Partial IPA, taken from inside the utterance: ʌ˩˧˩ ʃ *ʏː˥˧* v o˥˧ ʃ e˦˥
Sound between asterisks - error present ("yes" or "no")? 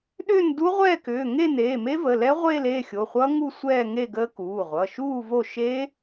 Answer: yes